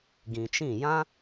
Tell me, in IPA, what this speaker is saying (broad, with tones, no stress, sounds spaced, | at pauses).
ɡ ĩ˨ t͡ʃ ĩ˦˨ j ã˦